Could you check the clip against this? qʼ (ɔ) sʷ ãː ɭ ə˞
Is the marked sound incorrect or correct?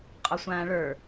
correct